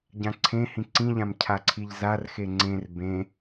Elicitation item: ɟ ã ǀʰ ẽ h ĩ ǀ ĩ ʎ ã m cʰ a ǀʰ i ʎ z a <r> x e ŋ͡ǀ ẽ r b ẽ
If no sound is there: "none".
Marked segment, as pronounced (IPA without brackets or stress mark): r